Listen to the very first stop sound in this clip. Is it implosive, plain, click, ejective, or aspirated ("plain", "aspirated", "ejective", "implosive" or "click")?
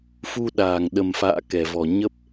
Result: implosive